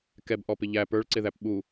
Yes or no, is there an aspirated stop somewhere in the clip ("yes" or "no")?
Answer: no